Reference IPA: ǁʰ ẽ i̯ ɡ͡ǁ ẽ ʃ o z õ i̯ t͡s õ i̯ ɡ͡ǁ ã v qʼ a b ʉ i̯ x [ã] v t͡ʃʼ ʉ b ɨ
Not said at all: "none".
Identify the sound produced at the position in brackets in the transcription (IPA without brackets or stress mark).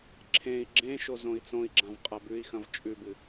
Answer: ɐ̃